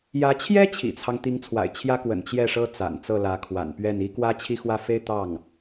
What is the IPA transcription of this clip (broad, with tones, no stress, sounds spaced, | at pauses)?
j ä˧˥ t͡ɕʰ j ɛ˥ t͡ɕʰ ḭ˨˩ t͡sʰ ɑ˦ ŋ t̪ i˧˥ ŋ t͡sʰ w a̰˨˩ ɪ̯ t͡ɕʰ j ä˥ k w ə̰˨˩ n t͡ɕ j ɛ˥˩ ʂ ɤ˥ t͡s a̰˨˩ n t͡s ɤ˥˩ l ä˧˥ kʰ w a̰˨˩ n p ɥ ɛ˥˩ n i˥ k w ä˥ t͡ɕʰ i˥˧ x w ä˥˩ f e˥ ɪ̯ t̪ ɑ˥˩ ŋ